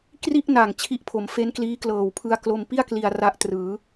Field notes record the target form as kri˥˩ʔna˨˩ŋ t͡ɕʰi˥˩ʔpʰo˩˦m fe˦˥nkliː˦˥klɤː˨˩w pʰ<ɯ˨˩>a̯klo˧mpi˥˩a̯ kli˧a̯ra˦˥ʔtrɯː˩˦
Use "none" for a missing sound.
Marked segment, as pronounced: ɯ˧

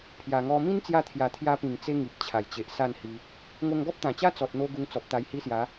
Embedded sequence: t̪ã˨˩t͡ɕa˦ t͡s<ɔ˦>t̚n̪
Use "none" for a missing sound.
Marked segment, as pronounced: ɔ˨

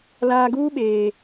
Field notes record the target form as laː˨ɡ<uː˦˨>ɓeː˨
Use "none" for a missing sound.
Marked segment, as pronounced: uː˦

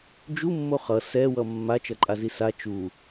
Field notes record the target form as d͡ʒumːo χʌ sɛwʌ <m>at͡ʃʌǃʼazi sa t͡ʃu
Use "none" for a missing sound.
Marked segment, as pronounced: mː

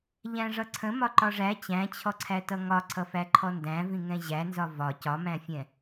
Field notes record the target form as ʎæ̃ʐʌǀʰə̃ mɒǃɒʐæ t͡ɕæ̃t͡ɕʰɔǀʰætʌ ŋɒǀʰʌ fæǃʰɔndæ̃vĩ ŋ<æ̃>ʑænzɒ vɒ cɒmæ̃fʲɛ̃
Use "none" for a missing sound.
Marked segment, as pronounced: ɛ̃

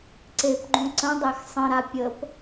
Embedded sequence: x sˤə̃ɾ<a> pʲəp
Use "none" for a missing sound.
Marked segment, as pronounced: a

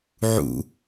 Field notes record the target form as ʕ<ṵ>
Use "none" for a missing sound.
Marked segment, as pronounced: ṵ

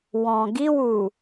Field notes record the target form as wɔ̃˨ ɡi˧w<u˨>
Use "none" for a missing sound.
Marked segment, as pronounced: u˨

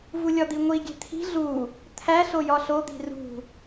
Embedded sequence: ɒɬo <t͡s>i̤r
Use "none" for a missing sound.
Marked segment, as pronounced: d̪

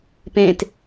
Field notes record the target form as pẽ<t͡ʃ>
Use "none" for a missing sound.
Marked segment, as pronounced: t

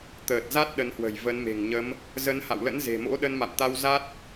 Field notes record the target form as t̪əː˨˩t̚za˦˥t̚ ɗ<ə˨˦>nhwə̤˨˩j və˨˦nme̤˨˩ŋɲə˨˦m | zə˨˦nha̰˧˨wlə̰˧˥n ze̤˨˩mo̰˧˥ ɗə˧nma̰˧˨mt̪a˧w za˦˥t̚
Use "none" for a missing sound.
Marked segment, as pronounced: ə˨˦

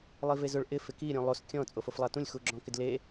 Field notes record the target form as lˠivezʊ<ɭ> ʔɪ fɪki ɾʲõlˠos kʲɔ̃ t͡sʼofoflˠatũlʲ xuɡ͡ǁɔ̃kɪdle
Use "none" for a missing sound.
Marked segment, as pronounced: ɭ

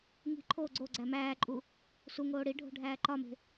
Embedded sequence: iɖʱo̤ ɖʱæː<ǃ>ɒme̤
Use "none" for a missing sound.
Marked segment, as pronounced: ǃ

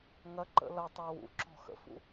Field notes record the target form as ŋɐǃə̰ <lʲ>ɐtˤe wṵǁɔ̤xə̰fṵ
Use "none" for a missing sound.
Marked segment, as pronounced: l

